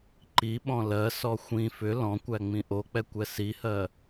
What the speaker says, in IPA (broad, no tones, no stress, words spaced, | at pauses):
ǃi ɓɔ̃lɜsɔ xʷĩ fʏ lɔ̃kʷæ ŋ͡mĩʔok͡pɛ kʷɛsihɜ